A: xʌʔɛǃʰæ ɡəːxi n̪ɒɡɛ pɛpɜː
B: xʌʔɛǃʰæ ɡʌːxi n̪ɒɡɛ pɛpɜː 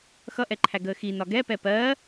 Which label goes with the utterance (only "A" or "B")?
A